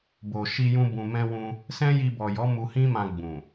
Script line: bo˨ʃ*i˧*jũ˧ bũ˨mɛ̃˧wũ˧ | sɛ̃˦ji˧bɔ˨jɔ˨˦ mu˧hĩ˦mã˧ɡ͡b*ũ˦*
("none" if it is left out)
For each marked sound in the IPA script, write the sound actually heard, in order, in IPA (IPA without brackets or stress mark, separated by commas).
i˧, ũ˨